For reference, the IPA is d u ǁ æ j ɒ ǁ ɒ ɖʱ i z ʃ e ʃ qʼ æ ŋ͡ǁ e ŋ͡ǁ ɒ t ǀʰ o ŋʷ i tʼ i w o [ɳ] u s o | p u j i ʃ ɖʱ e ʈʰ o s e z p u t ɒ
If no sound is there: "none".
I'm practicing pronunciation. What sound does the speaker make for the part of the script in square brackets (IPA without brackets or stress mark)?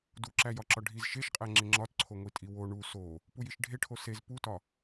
ɳ